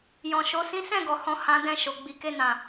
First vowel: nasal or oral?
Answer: nasal